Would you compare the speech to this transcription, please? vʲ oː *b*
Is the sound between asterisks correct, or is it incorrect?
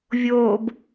correct